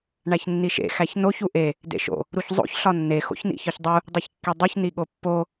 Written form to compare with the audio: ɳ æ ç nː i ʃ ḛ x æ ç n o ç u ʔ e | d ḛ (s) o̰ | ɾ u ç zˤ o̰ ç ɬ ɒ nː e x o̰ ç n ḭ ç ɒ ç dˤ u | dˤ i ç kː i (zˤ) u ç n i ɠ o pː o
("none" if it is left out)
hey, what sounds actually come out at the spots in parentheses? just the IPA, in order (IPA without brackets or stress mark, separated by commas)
ʃ, dˤ